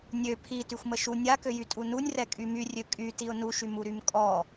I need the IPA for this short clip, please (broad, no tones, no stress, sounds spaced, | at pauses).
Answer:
nʲ ø pʰ i t y xʷ m ə ʃ u nʲ a k ø j y tʼ u n u nʲ r ɛ kʼ y m y rʲ ø kʼ y t i ʊ̯ n u ʃ y m u ɾ y m kʼ ɔ